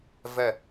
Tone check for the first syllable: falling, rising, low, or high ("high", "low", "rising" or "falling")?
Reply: falling